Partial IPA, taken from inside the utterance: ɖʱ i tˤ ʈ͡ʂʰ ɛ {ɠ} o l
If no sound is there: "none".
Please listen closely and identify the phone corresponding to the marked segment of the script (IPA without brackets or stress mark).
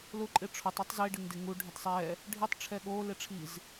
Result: ɠ